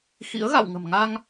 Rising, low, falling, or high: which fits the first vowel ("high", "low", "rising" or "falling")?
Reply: rising